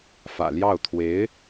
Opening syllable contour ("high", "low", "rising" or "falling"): low